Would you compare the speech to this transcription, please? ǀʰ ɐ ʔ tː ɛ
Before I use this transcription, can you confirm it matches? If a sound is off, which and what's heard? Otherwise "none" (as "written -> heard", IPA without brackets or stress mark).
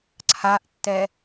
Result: ɐ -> a